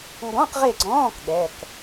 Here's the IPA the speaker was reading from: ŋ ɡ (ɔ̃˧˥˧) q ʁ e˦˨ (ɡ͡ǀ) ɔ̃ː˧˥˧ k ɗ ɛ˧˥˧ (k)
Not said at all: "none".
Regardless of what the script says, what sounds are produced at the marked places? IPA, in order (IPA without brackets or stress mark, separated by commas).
ɔ̃˧˥˧, ɡ͡ǀ, k